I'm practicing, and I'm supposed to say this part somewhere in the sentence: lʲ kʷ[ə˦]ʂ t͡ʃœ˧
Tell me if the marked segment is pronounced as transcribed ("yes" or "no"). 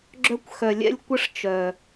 yes